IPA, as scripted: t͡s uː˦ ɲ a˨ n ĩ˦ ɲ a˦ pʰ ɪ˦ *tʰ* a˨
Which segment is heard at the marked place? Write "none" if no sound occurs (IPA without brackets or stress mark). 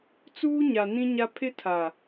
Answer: tʰ